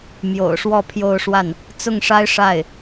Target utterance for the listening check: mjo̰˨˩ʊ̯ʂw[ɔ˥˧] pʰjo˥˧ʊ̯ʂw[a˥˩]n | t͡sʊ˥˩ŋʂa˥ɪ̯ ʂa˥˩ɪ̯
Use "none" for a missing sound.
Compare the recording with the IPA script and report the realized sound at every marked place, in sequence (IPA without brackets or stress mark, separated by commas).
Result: ɔ˥˧, a˥˩